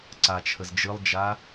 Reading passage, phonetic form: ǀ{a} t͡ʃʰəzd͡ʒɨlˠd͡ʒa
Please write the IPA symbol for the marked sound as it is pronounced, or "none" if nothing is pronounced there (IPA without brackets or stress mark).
a